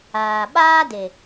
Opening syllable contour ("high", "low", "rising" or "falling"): low